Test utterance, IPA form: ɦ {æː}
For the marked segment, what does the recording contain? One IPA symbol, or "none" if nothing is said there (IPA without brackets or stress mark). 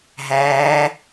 æː